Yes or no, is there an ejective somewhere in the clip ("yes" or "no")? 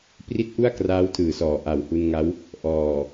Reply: no